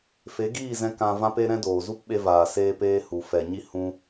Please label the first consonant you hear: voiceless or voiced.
voiceless